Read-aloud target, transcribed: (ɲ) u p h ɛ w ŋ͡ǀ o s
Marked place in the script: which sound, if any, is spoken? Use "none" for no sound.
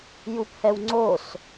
j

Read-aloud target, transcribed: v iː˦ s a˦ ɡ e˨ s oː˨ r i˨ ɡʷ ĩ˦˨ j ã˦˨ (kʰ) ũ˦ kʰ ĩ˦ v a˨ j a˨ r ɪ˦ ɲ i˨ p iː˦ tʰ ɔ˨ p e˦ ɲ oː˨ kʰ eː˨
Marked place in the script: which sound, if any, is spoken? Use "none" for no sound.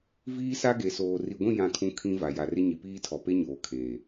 kʰ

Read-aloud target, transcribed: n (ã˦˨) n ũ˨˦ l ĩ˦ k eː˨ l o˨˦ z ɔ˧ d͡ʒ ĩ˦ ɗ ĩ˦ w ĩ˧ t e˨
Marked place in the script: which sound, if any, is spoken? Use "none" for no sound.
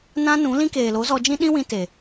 ã˦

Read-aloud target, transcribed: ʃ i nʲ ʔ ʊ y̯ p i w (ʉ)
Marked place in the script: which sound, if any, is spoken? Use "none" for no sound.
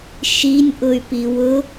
ʊ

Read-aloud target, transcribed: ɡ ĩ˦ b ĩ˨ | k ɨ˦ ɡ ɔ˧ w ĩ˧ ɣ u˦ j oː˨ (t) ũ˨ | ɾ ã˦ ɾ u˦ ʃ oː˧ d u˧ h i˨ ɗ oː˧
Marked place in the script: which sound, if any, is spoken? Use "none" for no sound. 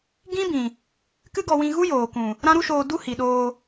k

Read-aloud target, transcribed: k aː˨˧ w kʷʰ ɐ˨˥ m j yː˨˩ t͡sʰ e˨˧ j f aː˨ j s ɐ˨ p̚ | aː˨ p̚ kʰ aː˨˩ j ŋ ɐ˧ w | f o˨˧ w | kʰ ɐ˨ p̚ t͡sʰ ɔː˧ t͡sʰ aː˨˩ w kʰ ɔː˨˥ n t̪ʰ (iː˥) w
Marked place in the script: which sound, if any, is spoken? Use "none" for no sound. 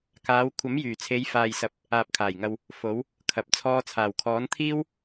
iː˥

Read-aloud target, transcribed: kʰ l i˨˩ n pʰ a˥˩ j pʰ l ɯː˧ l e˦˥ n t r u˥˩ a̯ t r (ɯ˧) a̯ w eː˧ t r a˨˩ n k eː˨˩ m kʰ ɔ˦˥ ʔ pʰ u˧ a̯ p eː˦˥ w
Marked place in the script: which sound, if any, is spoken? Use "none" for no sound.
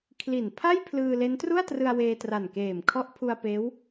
ɯ˧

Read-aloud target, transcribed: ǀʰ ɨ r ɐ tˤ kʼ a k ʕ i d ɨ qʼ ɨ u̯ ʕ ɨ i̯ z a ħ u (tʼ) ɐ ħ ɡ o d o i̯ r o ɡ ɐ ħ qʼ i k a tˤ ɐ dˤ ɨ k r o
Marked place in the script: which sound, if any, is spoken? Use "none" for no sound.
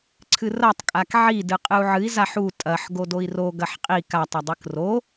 tʼ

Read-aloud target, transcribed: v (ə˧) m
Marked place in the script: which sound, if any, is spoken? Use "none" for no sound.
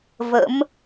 ə̰˧˥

